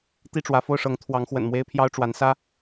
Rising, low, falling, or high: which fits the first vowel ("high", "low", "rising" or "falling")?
falling